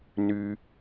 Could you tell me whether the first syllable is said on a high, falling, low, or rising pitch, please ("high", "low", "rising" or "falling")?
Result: high